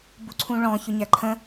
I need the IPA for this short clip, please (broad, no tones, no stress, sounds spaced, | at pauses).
b u ǀʰ ũ ɭ ɔ̃ ç ʊ ɲ æ ǃʰ ə̃